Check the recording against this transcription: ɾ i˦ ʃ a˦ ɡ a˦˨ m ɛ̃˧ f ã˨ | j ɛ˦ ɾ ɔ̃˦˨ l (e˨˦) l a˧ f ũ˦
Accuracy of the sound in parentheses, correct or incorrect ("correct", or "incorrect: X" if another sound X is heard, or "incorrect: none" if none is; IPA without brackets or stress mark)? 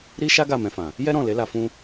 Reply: correct